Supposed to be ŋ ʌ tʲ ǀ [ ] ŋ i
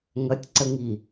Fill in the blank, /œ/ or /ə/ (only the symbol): ə